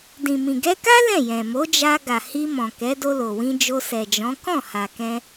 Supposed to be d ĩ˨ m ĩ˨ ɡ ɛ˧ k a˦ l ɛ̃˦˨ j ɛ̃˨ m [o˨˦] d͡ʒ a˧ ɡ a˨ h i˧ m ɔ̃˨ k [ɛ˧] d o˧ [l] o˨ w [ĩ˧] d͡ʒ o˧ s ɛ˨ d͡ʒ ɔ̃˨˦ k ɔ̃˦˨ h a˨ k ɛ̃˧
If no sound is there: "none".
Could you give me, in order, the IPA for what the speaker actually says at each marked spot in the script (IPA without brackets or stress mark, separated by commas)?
o˨˦, ɛ˨˦, l, ĩ˧